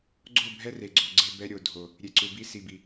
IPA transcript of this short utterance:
ɡ͡ǀ o˦˨ bʱ ɛ˦ r e˨ ɡ͡ǀ o˨ ɡ͡ǀ e˦ b ɛ˦ ɾʲ o˨ dʱ o˨ | ɾʲ e˨ ǀ u˨ b i˦ s i˨ b i˨

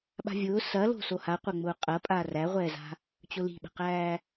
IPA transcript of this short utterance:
ɓ a̤ vʲ ʊː s ɐ l o̤ s o h a qʷ ɐ ŋ͡m ʊː qʼ ɐ pʼ aː r æ ʁʷ ɛː z a̤ | t͡ɕ ʊ l i̤ ɓ ə̤ q æː

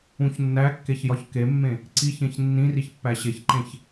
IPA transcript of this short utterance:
ũ ç nː æ kː e ç j ɒ ç k e mː ẽ | ǀ i ç ẽ ç nː ĩ r i ç pː æ ɕ e ç ǃ ẽ ç

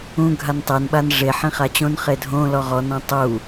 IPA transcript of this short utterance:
ũ ɡʱ a n tˤ e n ɓ a n ʐ e ħ ĩ χ a t͡ɕ õ n χ e dʱ õ l ɔ ʁ ɔ n ɔ̃ tˤ u

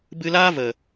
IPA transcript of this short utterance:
b ɨ˧ l aː˦ v ə˨

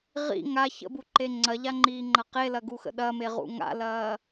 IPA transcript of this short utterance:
ʁ ḭ ŋ a ç ə̰ b u ǃ e ŋ͡ǀ ɐ ʎ a ŋ͡ǃ iː ŋ͡ǃ ɐ q e l ɐ ɡ u x ə̰ ɗ ɐ m e ʁ ṵ ŋ a̰ l ɐː

